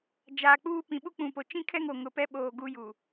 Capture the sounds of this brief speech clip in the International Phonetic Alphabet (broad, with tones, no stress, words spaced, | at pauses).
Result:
d͡ʒaː˨k͡puː˦ pĩ˨ɓu˦k͡pũ˨po˨ t͡ʃĩ˦kʰɛ˦ŋo˨ŋʊ˨ pɛ˦ɓoː˨ ɡu˦ju˨